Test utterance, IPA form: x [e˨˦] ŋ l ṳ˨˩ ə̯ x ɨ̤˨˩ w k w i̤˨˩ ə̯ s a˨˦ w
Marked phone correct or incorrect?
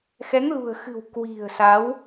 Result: incorrect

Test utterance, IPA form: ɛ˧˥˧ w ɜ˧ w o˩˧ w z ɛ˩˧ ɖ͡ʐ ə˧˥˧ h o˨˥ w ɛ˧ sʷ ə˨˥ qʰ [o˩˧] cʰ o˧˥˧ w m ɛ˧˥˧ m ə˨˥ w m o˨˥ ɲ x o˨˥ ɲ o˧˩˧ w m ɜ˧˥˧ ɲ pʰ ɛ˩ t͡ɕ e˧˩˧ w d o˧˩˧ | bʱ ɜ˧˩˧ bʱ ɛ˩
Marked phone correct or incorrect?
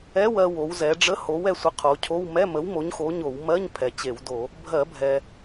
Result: correct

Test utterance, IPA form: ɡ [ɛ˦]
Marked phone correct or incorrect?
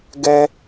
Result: correct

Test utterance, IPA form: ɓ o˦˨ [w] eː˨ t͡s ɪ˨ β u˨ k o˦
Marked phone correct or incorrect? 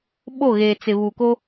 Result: incorrect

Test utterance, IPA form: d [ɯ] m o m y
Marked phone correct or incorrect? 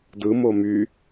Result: correct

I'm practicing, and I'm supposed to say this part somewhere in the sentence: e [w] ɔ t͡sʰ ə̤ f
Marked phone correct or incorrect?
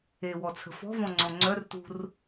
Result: correct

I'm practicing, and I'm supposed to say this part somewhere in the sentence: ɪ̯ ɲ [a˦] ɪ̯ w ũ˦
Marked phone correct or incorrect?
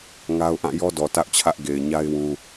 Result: correct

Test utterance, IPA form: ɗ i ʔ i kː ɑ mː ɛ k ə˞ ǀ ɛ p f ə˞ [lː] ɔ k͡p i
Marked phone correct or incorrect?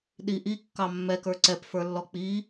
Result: correct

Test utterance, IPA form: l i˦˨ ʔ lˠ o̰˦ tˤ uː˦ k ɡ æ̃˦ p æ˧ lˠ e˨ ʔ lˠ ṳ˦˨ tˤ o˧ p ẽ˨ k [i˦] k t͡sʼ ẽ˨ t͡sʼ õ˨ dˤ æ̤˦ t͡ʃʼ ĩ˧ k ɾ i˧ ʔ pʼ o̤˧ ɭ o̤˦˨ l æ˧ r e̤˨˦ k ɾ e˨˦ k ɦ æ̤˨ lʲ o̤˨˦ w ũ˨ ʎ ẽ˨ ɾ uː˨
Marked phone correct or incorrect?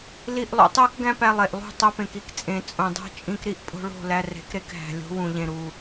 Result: correct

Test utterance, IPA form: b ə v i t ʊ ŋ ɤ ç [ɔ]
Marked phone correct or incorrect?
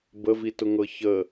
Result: incorrect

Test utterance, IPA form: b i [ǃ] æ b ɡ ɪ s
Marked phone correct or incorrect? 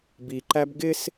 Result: correct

